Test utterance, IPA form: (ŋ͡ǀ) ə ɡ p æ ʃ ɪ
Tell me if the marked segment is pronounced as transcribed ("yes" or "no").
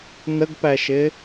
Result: no